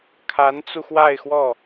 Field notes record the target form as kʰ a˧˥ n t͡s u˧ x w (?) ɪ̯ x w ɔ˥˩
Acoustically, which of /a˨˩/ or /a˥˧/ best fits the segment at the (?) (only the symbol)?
a˥˧